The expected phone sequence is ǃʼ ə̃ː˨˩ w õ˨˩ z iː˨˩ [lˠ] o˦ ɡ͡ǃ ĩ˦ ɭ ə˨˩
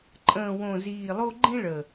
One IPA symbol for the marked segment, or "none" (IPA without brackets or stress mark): lˠ